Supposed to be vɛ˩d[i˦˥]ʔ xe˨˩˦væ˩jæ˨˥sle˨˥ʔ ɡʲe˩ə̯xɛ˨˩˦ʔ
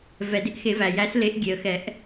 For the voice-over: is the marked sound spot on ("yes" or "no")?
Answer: no